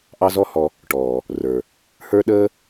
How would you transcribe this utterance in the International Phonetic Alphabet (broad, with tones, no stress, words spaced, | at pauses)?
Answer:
ʔɑ˦zɔ˦hɔ˧ | ʈɔː˨ | rə˞˨ | hə˞˦ɗəː˦